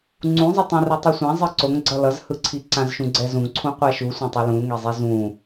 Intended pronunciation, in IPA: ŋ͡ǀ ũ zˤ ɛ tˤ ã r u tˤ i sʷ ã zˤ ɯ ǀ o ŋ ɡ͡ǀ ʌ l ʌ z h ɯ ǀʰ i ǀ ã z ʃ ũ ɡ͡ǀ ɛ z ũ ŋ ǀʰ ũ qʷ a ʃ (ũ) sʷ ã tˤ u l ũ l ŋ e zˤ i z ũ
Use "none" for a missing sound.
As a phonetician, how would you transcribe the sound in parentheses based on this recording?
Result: u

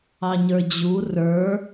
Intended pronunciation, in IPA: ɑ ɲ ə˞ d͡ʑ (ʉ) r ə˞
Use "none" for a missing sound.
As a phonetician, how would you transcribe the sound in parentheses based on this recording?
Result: u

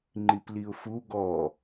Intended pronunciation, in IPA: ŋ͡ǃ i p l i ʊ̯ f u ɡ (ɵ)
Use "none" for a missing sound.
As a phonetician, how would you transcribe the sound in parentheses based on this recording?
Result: ɔ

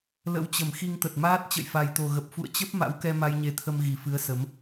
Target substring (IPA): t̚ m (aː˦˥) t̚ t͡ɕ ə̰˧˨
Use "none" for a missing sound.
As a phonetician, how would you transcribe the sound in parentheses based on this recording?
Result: aː˦˥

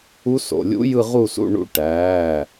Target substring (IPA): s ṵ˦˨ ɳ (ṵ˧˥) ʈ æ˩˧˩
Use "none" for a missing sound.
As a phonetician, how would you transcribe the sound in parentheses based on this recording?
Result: ṵ˧˥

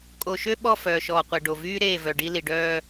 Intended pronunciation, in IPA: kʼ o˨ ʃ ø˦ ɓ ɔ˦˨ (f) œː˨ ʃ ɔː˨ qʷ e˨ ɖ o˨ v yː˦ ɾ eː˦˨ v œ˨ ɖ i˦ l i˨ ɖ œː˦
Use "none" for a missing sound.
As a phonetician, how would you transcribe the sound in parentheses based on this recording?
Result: f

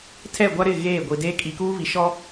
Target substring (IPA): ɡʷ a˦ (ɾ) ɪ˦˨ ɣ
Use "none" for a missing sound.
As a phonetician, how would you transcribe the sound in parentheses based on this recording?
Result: ɾ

